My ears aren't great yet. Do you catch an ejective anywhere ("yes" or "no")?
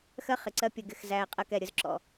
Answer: yes